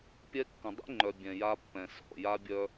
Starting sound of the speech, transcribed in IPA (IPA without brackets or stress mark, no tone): pʲ